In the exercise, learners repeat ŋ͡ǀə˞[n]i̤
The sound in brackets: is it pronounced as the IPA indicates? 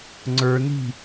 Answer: yes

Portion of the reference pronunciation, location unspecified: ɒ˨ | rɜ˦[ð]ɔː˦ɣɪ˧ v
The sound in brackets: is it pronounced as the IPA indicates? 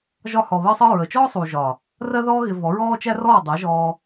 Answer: yes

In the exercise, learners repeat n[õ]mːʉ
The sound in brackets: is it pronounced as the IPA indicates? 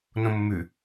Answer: yes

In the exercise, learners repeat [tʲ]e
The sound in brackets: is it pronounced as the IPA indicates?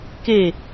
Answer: no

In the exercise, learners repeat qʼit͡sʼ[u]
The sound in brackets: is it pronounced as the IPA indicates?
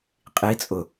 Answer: no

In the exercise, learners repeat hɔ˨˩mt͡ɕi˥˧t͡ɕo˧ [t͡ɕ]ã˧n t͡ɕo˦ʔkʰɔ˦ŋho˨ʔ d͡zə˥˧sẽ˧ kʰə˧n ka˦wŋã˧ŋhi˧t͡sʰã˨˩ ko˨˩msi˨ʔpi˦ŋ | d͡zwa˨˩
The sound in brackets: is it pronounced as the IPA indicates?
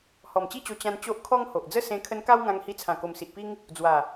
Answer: yes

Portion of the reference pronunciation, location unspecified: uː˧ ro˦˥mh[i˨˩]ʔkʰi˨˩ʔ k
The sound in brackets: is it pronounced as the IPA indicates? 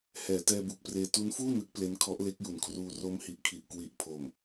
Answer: yes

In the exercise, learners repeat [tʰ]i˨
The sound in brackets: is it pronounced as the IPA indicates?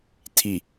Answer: yes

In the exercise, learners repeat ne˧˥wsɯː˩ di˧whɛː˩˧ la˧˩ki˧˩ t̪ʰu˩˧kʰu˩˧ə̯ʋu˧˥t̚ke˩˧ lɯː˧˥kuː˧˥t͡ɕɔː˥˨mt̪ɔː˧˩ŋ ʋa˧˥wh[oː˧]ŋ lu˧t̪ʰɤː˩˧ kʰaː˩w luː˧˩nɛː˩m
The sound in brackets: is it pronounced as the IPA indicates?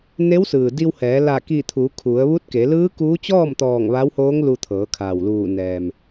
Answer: no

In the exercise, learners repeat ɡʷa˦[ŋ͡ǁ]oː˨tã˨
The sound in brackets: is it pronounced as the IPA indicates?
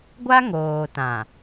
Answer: no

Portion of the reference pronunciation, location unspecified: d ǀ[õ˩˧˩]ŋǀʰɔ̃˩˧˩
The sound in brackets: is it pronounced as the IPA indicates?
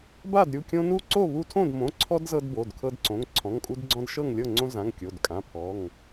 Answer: yes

